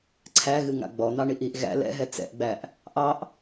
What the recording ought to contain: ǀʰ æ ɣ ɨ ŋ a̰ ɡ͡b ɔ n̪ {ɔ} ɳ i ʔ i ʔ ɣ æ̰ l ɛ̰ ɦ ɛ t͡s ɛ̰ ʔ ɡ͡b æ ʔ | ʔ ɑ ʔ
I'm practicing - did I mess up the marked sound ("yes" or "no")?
yes